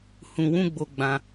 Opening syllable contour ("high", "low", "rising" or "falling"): low